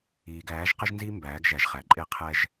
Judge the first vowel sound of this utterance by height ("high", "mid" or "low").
high